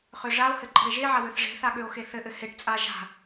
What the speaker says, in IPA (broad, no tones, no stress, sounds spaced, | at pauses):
χ ø ʐ a o̯ h ɘ ǃʼ ə̤ e̯ ʒ e ʕ a w ø θ ʐ e̤ θ a ɠ ø o̯ x e θ ɘ ʔ ɘ h e ʈ t͡sʼ a ʒ a̤